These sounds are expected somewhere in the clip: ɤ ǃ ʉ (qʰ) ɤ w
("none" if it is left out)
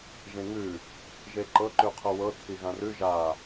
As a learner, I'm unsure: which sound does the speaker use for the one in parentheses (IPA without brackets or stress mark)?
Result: qʰ